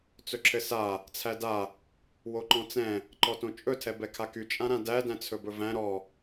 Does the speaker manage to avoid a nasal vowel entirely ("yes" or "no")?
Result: no